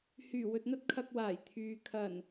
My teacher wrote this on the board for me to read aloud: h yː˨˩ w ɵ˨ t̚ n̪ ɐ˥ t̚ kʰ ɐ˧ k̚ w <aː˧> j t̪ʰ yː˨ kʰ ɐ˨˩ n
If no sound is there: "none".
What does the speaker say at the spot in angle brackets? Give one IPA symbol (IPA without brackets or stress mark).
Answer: aː˨˩